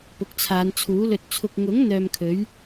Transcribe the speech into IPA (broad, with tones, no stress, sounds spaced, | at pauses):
p ʊ˨˥ k̚ t͡sʰ aː˨˧ n t͡sʰ uː˨˥ l ɵ˧ t̚ t͡sʰ ʊ˨ k̚ ŋ ʊ˨˥ ŋ n̪ œː˧ m kʰ ɵ˨˥ ɥ